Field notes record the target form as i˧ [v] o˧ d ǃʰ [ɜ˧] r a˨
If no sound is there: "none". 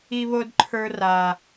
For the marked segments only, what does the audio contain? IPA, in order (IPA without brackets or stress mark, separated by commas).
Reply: β, ə˞˧